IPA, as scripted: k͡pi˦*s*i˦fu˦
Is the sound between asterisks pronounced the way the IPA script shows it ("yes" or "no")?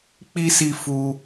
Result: yes